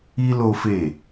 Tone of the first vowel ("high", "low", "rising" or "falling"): high